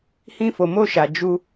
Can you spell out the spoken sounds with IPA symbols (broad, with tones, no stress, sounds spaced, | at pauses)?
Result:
h ĩ˧ f o˨ m o˧ ʃ a˨ d͡ʒ u˧